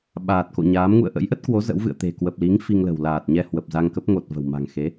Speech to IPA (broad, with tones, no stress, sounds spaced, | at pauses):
ɓ aː˨˩ t̚ k o̰˧˨ ɲ aː˨˦ m ŋ ṵ˧˨ ə̯ ʔ ə̰˧˥ j ʔ ə˦˥ t̚ k w o˨˦ z ə̰˧˥ w v ɨ̰˧˨ ə̯ t̪ e̤˨˩ k w ə˨˩ p̚ l i˨˦ ŋ f i˧ ŋ l ə̤˨˩ w l aː˨˩ t̚ ɲ ɛ˧ h w ə˨˩ p̚ z a˧ ŋ k ə˦˥ p̚ ŋ o˨˩ t̚ v ə̤˨˩ w m a̤˨˩ ŋ x e˨˦